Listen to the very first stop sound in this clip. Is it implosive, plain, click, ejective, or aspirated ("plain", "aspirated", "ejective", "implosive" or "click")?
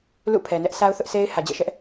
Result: aspirated